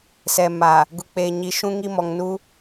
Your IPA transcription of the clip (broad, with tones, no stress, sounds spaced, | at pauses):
s ɛ˨ m aː˨ | ɡ u˨ k͡p eː˨ ɲ i˨ ʃ ũ˦ ŋ i˦ m ɔ˨ ŋ n uː˦